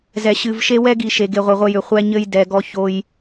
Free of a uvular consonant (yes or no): no